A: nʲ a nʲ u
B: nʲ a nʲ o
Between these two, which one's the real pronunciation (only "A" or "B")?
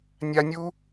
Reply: A